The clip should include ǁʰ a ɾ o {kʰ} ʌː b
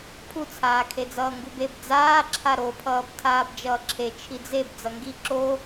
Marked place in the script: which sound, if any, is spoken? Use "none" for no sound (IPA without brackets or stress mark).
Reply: pʰ